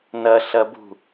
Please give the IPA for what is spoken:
n ɐ ɬ ɐ b ṳ

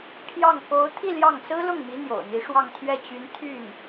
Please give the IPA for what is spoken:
pʰ j ɑ˥˩ ŋ k o˧˥ ʊ̯ t̪ʰ i˥˧ l j ɑ˥˩ ŋ s ɹ̩˥ l ʊ˥˩ ŋ m i˧˥ n̪ j o̰˨˩ ʊ̯ n̪ i˧˥ ʂ w ɑ˥˧ ŋ t̪ʰ ɥ ɛ˥˩ t͡ɕ y˧˥ n t̪ʰ y˥˩ n

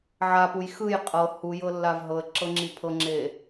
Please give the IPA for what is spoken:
ʕ a p u j x ɯ j qʼ ɤ h u j ɤ lː a v ɦ ɤ ə̯ ǁ ɤ ŋ͡ǁ i pʰ ɤ ŋ͡ǁ e

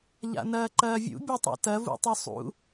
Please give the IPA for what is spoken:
ʎ a̰ n ɐː ǃ ɐː vʲ ṵ bʲ ɐ tˤ ṵ t ɐ v ṵ tˤ u sˤ ṵ

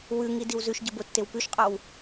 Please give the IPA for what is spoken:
w ʉ ŋ i d i w z ʉ ʃ ɟ ə b o tː e w p ʉ ʃ qʼ ɔ w

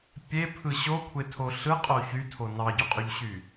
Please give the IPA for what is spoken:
pʲ e pʰ ɯ ɕ o kʷʰ e tʰ o ɬ ɯ qʼ o ç y tʰ o n ɑ ɟ o qʼ o ʎ ɕ y

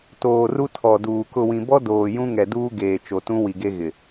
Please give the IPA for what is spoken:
t oː˨ r u˦ tʰ ɔ˨ d uː˨ k ʊ˨ w ĩ˨ b ɔ˦ d oː˨ j ũ˦ ŋ ɛ˨ d uː˦ ɡ eː˨ t͡ʃ o˨ t ũ˦ w i˨ ɡ e˦ ɣ ɪ˨

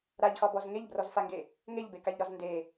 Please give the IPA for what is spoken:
ɾ a ʎ x ɒ b ɔ z ŋ e ʎ b r ɔ z f a ŋ ɡ e | ŋ e ʎ b e k a ʎ ɾ ɒ z n d e

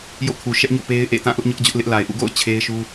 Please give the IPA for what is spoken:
j o̰˦˨ kʰ u˨ ʃ ɛ˦ ʔ ɲ o̰˦˨ p e˦ ɪ̯ ʔ ḛ˦˨ t ã˦˨ ʔ ʊ˦ ʔ ɲ ʊ˦ ʔ d͡ʑ ʊ˦ ʔ l ɪ˦ ʔ l a˨ ɪ̯ ʔ ṵ˦˨ ɡ o̰˦˨ ʊ̯ t͡ɕʰ e˦ ɪ̯ ʃ u˦

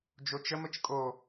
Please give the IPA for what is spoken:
d͡ʒ o t͡ʃ ə m ə t͡ʃ kʼ o

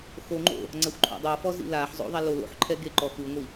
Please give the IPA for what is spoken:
x o ŋ͡ǃ o̰ | ŋ͡ǀ a xʷ ǃʰ ɔ̰ dˤ ɤ f ɔ z ḭ l a ħ zˤ o̰ ðˤ a l o l o̰ ħ ǃʰ ɛ ɡ e ǃ ɔ x ɯ ŋʷ i

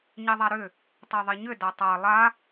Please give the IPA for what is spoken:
ɲ e ðˤ a ɾ ʏ | tˤ e ðˤ i ɲ ʏ d a tˤ a lˠ a

